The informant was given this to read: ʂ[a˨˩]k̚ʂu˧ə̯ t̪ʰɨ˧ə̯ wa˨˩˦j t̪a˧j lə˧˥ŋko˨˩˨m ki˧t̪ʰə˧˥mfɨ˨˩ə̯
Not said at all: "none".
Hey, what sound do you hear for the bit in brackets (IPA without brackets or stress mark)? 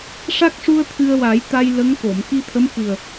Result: a˦˥